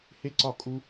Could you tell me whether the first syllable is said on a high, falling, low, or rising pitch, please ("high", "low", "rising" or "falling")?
high